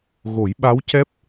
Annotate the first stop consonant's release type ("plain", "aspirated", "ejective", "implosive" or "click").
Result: implosive